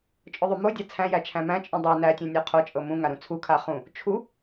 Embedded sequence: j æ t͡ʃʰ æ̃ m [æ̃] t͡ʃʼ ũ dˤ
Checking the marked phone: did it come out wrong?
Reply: no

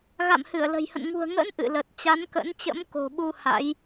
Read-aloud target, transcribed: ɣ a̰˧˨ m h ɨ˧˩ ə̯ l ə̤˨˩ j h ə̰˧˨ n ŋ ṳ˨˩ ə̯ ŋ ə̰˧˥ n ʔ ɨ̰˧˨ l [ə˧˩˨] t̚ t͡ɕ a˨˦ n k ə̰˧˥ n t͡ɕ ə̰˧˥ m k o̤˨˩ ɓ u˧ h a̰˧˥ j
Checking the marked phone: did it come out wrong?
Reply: yes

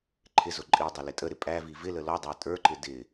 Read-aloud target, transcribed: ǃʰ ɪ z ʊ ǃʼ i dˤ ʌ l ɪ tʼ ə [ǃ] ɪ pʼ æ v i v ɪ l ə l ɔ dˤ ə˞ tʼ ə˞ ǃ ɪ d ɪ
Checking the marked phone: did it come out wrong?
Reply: yes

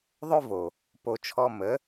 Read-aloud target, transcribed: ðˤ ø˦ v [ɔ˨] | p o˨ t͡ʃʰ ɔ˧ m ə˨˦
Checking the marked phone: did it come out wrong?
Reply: yes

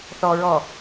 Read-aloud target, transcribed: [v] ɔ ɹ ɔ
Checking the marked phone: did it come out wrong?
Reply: yes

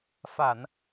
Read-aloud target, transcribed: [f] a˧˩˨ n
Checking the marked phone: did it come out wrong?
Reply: no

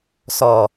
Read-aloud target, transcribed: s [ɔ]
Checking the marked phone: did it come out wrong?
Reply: no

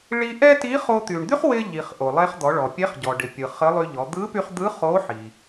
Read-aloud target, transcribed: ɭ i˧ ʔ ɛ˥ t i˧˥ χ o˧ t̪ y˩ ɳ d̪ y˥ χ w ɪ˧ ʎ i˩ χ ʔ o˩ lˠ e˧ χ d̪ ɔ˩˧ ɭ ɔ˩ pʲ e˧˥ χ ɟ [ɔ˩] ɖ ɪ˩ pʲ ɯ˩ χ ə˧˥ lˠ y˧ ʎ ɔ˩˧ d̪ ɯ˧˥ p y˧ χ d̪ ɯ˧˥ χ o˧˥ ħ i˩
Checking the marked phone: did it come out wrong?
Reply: no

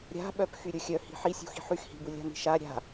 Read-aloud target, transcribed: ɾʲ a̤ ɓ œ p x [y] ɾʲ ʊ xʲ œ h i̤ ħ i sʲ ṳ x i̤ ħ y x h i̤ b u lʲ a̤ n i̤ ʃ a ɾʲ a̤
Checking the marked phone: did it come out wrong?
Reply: no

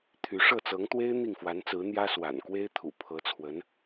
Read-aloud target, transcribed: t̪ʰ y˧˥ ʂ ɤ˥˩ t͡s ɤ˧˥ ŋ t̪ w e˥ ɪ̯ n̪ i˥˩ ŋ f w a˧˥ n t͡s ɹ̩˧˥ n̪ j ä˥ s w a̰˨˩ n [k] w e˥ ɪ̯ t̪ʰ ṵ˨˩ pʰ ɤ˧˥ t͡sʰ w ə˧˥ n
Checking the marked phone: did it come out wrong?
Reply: no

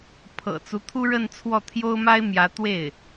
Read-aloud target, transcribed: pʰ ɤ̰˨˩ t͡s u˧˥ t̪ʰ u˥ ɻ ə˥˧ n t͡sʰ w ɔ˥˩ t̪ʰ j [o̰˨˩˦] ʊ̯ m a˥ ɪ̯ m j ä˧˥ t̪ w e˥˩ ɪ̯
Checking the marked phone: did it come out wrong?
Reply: yes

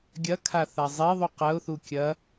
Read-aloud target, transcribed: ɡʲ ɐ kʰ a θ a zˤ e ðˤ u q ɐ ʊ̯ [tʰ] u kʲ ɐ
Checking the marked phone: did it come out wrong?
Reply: yes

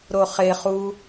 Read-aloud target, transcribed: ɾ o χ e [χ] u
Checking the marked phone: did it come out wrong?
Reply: no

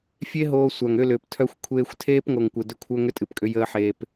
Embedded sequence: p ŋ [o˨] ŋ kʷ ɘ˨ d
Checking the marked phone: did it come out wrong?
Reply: no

